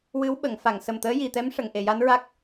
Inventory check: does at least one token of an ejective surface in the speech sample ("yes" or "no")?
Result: no